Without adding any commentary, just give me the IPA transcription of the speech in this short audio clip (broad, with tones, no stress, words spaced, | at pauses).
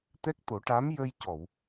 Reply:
t̪ɛ˦˥k̚t̪o˨˩˦ʈa˧˥m jə˧j cɔ˨˩˨w